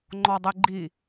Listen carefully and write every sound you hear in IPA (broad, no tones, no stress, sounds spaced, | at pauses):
ŋ͡ǃ ɔ dˤ e ɡ͡ǃ i